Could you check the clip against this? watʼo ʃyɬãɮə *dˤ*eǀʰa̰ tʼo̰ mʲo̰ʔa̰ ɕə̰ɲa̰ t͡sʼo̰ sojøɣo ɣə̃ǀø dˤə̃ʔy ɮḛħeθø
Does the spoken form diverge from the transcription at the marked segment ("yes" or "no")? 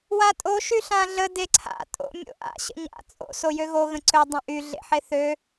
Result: yes